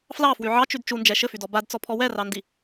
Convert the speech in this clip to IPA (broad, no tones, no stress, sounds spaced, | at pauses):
f l ɑ f w y ʕ ɑ t͡ʃ y d t͡ʃ u n d͡ʒ ɛ ʃ ɘ f y d ɔ b a d t͡s ɔ pʰ ɔ w ɛ r ɑ n d i